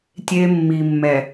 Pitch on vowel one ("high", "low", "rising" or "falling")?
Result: high